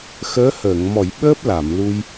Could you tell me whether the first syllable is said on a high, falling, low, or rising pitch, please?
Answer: rising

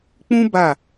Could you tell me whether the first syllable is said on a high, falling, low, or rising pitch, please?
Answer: high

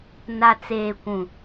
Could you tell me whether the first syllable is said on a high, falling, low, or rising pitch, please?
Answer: low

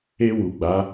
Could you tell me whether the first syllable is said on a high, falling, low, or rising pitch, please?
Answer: high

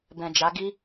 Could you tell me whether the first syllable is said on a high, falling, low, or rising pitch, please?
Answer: low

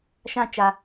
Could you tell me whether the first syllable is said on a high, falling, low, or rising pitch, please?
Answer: high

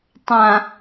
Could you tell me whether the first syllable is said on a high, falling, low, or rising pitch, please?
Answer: low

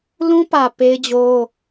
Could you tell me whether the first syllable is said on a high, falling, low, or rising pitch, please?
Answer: high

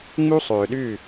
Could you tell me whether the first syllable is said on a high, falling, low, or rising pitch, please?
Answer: high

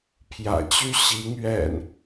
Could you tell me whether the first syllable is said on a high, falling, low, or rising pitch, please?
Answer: low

